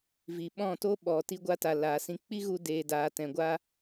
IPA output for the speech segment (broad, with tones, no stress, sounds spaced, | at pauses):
v i˨ ɓ ɔ̃˦˨ t o˦ ɓ ɔ˨ t i˧ ɡʷ a˧ t a˨ l aː˨ s ĩ˧ k͡p i˦ ɣ u˧ d eː˨ d aː˨ t ɛ̃˨ ɡʷ a˦